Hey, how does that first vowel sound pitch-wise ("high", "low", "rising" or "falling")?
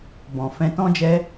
low